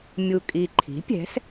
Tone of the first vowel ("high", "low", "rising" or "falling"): low